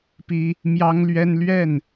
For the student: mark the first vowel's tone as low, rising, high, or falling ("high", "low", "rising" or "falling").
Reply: high